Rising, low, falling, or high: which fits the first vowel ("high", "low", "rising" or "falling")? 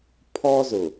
high